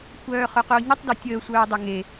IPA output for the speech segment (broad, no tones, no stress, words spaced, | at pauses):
kʷʰœːχœqʊːɲətˤ døtʲəː sʷœːdˤʊŋe